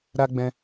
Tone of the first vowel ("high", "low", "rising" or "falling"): high